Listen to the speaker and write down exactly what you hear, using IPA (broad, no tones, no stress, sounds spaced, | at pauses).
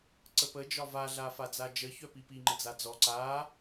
ǀ ə p ə d͡ʒ ɒ v a ɮ a f a d͡z a d͡ʒ ə ç œ p i p i ŋ͡ǃ ə d͡z a d͡z ɔ ǀ a